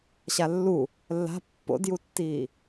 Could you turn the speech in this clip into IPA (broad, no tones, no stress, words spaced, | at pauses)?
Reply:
ɕalːu | lːa̤ pːo̰djutːiː